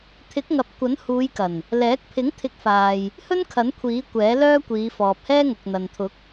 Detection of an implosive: absent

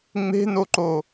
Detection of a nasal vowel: absent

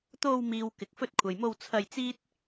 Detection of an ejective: absent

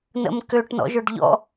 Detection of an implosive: absent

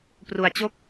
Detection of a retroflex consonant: absent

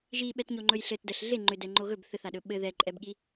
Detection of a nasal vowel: absent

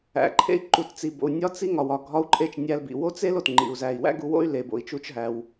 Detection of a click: present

